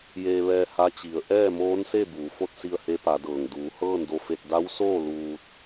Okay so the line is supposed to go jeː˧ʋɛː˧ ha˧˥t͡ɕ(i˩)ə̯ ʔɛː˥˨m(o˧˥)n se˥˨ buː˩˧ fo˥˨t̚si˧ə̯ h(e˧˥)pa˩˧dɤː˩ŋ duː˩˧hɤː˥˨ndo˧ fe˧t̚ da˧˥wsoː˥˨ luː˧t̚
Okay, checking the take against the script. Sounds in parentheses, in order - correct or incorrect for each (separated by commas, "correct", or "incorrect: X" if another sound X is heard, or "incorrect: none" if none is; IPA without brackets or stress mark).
incorrect: i˩˧, incorrect: oː˧˥, correct